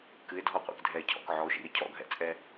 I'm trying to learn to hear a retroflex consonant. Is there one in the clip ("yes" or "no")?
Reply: no